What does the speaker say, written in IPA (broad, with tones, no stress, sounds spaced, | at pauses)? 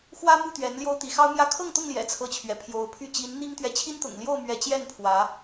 x w ä˦ m u˥˨ t̪ ɥ ɛ˨˦ n l j o˦ ʊ̯ t̪ i˨˦ x ɑ˦ ʊ̯ m j ä˥˨ kʰ ɤ˥˨ ŋ t̪ ʊ˥˨ ŋ l j ɛ̰˨˩ t͡sʰ ɤ˦ t͡ɕʰ ɥ ɛ˨˦ pʰ j o˨˦ ʊ̯ pʰ y˥˨ t͡ɕ i˨˦ n n̪ i˦ ŋ t̪ ɥ ɛ˨ t͡ɕʰ i˦ n t̪ ʊ̰˨˩ ŋ l j o˥˨ ʊ̯ m ɥ ɛ˨˦ t͡ɕ j ɛ˥˨ n pʰ w ä˨˦